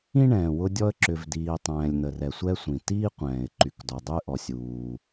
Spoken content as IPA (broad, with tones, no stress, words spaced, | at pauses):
ĩ˥ɳɛ̃ː˩ wʊ˥dʲɔ˥ə̯ ǁʏ˩vdiː˩ tˤɛ̃ː˩lʲn̪ə˩rɛ˩ sʷɛ˥sʷĩ˩ tiː˥qʷɛ̃ː˩ɪ̯ ǃy˩kdɔ˩ dˤy˥ ʔɔ˩sʲuː˩